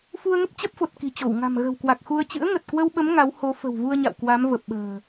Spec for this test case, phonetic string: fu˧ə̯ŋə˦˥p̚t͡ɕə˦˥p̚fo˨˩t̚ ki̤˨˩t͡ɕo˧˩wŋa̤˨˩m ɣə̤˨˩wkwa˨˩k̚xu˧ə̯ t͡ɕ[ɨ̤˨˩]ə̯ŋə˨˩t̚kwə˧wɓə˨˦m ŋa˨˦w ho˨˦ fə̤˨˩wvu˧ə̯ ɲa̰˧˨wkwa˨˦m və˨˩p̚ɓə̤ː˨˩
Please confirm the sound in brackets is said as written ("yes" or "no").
no